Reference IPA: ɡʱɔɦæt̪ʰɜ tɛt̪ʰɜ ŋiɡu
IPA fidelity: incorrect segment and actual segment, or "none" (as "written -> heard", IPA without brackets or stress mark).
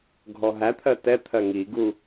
none